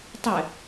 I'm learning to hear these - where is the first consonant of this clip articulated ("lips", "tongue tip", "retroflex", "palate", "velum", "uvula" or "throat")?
tongue tip